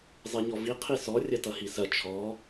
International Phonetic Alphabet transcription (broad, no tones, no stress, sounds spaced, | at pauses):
zˤ e ɲ ɔ v i qʰ i s ɔ rʲ ɐ t ʌ h i s ɐ t͡ʃʰ ɔ